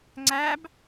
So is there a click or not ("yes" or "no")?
yes